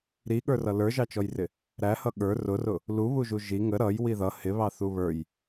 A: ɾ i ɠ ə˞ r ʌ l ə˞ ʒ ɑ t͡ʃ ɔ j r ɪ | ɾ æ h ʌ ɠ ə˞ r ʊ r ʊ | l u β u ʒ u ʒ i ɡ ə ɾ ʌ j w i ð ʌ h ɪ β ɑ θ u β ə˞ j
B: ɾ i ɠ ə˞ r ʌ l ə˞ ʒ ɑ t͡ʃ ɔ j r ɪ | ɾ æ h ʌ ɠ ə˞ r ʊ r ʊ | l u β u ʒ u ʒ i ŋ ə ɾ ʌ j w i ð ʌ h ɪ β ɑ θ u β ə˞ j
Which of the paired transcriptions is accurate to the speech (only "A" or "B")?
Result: B